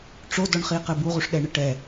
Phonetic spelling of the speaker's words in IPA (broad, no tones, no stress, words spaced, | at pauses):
ʈ͡ʂodɔɳχiqɘ buʁuʂɗɛɳɘ ʈɛ